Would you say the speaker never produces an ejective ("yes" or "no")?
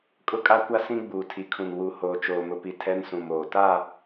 no